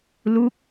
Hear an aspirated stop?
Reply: no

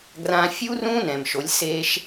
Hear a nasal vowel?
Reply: yes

